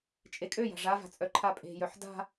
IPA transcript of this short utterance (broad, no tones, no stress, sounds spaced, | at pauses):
t͡ʃʼ e kʼ ø j a̤ ʐ a v a̤ t͡sʼ œ ǃʰ a pʼ e̤ j œ ħ d a̤